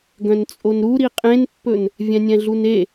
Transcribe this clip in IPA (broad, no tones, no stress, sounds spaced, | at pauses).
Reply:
ɡ œ̃ n t͡sʼ o n ɾ u ɾ i qʼ ẽ n pː ɵ n | vʲ ɛ̃ nʲ ɛ̃ ɮ u n e